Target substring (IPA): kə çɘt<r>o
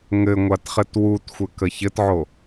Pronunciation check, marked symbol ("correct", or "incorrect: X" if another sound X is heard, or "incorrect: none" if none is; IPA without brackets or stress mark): incorrect: ʕ